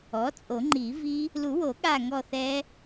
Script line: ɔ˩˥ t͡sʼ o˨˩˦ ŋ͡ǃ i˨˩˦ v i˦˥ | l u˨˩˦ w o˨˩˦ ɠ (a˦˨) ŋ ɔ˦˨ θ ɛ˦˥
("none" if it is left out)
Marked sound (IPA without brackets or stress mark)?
a˦˨